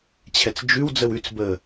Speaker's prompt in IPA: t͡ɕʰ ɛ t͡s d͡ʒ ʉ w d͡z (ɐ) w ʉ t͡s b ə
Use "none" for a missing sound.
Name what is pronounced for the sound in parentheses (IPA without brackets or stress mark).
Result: ə